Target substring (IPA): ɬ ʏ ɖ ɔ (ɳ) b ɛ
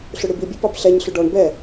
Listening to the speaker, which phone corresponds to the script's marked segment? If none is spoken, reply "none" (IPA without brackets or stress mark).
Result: ɳ